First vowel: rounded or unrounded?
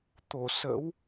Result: rounded